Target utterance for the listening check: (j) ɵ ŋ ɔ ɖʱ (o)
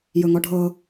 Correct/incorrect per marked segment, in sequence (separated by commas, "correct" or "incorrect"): correct, incorrect